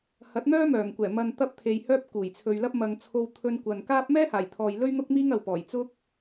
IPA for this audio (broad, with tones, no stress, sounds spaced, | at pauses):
h ɐ˨˥ t̚ n̪ œː˥ m œː˨˩ ŋ kʷ ɛː˨˩ m ɐ˨ n t̪ ɐ˧ p̚ t̪ʰ e˨ j h œː˥ p̚ k uː˨˩ j t͡sʰ ɵ˨ ɥ l ɐ˥ p̚ m ɐ˨ ŋ t͡sʰ o˧ w t̪ʰ ɵ˧ n kʷ ɐ˨ n k aː˥ p̚ m ɛː˥ h aː˨˩ j t̪ʰ ɔː˨ j l ɵ˥ ɥ n̪ ʊ˥ k̚ m iː˥ ŋ ɐ˨ w p ɔː˨˩ j t͡s ʊ˥ k̚